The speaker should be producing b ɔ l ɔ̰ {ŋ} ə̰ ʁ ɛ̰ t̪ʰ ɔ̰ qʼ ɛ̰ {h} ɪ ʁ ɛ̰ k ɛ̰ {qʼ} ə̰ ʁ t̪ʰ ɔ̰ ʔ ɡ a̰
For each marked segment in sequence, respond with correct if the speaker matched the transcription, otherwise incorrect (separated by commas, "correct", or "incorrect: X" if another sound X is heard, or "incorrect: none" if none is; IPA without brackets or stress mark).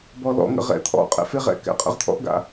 correct, incorrect: f, correct